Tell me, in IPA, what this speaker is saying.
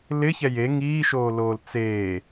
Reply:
l ɪ ç ɛ j e ŋ iː ʃ oː l oː l t͡s eː

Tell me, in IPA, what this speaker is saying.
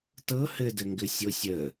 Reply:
t ɤ h ɘ d ɘ ŋ ɡ ɘ sʲ o sʲ ə

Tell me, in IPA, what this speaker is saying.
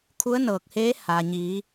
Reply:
kʰ u˧˥ ə̯ n ɤː˧˩ k̚ h eː˧˥ h aː˩ ɲ iː˩˧

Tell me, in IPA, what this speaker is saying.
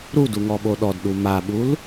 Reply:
ɾ u d u ŋ ɔ ɓ o ɗ ɔ d ɗ u m a ɓ u l

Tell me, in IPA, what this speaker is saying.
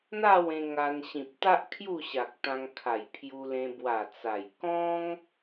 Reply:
n̪ a˥˧ w ẽ˧ ŋ a˧ n ɕ ĩ˨ p̚ t̪ a˦ ʔ kʰ j u˥˧ ɕ a˨ k̚ t̪ ã˧ ŋ kʰ a˨˩ j pʰ j u˧ l ẽ˧ b w a˨˩ t͡s a˨˩ j k ɔ̃˦ ŋ

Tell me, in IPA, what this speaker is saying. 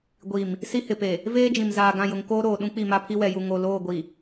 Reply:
ɡʷ i˨ m | s i˦ h ɪ˨ p e˨ | v eː˦ d͡ʒ ĩ˨ m z aː˨ ɡ ã˦˨ j ʊ˨ ŋ k oː˦ ɾ oː˨ ɗ ũ˦ k͡p i˦˨ m a˦ pʰ i˦ w ɛ˨ j u˨ ŋ o˨ l oː˦˨ ɡʷ i˨

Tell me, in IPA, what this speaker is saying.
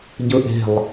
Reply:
ɟ ɯ ʔ e̤ lˠ

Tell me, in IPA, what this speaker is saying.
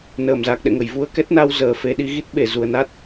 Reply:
n əː˧˩ m z a˨˩ k̚ ɗ ɛ̰˧˨ ŋ ə˧˩ j v u˧ ə̯ k ɛ˦˥ t̚ n a˧ w z əː˨˩ f e˨˦ ɗ i˨˦ ɣ i˦˥ t̚ ɓ e˧˩ z u˨˩ ə̯ n a˦˥ t̚

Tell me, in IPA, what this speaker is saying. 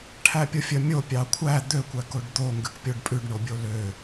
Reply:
ʈʰ æ pʲ o fʲ œ mʲ o pʲ ɑ kʷʰ æ d̪ ø kʷ æ k o ɖ d̪ o ŋ ɡ ʉ k pʲ o ɖ pʼ ʉ ɖ ɳ o bʲ o l ø

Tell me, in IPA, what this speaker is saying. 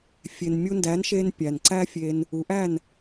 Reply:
fʲ e˩ n mʲ u˧ n d æ˩˥ n ʃ e˧ n pʲ æ˩ n ǀ æ˥ fʲ e˧ n | u˩˥ ʔ æ˥˩ n

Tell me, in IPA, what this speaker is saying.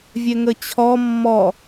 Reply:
vʲ ɛ ŋ ə t͡ɕʰ ɔ mː ɔ

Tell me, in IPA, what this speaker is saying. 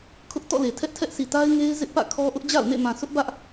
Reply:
kʰ ʊ˦ ʔ t ɔ̰˦˨ l e˨ tʰ ɛ˦ ʔ tʰ ɛ˦ ʔ sʰ i˨ t a˦ ɪ̯ ŋ e˦ ɪ̯ z ɪ˦ ʔ p ä̰˦˨ kʰ ɔ˦ ʔ ʊ˦ ʔ d͡ʑ a̰˦˨ ʊ̯ n ḛ˦˨ m ã˨ sʰ ʊ˦ ʔ b ä˦ ʔ

